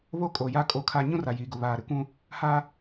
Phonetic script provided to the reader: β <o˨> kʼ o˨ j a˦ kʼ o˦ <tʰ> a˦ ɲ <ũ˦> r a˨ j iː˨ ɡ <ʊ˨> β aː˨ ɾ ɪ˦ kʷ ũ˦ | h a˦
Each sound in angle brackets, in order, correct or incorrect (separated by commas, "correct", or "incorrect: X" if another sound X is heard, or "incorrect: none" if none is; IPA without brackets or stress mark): incorrect: o˦, incorrect: kʰ, correct, correct